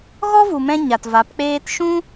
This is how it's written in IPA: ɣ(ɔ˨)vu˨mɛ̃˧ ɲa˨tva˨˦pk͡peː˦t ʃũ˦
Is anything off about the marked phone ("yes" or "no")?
yes